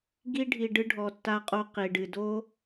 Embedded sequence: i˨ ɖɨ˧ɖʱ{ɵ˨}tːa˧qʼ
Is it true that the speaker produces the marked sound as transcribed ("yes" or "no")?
no